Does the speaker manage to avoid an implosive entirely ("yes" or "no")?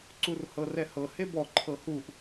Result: yes